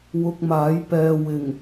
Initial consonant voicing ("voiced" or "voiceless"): voiced